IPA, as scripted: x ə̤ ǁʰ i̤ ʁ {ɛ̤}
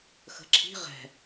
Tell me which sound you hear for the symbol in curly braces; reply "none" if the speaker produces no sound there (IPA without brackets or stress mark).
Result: ɛ̤